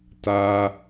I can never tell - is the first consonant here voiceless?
yes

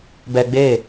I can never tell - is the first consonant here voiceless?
no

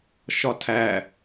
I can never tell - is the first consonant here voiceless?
yes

